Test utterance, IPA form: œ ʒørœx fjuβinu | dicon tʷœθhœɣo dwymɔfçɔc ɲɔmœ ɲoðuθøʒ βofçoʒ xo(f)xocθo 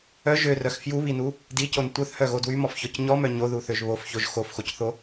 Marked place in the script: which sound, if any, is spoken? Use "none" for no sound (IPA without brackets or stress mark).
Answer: f